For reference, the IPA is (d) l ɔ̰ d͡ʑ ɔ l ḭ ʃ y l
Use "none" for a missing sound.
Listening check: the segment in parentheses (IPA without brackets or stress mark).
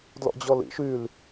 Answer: d